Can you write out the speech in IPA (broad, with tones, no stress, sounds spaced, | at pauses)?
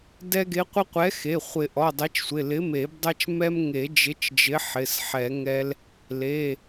d ɛ˦ ɡ e˨˥ qʷ ɪ˦ qʷ ɛ˨˥ x e˩˧˩ χʷ ɪ˨˩˦ ʔ ɔ˩˧˩ dˤ e˨˥ t͡ʃ sʷ ɪ˩˧˩ l ɪ˨˥ m e˨˩˦ b dˤ ɛ˦ t͡ʃ m ɛ˦ m ŋ e˨˩˦ d͡ʒ ɪ˨˥ t͡ʃ d͡ʒ ɪ˨˥ ħ ɪ˩˧˩ s ħ ɛ˨˩˦ ŋ ɛ˦ l | l e˩˧˩